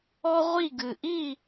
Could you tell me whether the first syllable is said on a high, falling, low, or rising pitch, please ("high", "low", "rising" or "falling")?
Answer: high